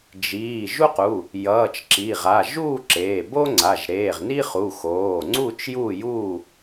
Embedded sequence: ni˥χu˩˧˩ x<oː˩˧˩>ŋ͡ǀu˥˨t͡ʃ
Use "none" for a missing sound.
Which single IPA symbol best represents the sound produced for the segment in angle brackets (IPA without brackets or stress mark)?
oː˩˧˩